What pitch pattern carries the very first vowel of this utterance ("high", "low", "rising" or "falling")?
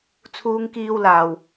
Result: high